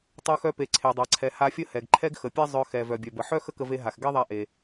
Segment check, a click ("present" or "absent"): present